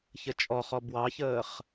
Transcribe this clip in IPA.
çət͡ʃʼɔχɔ bwɑçəːχ

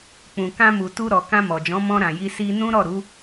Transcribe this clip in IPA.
k͡pũ˨kã˧mu˨ tu˧ɾɔ˨ kã˧mɔ˨d͡ʒɔ̃˨˦ mɔ̃˧ɾã˨ji˧ si˧nũ˦ ɾɔ˦˨ɾu˨˦

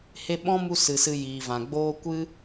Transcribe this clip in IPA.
he˧ɓɔ̃˦mu˧ sɨ˨sɨ˧ jiː˨vã˨ɡ͡boː˦ kʷɨ˦

